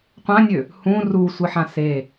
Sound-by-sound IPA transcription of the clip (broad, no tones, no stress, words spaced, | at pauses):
qʷãnʲø | hũ rusʷɨħã se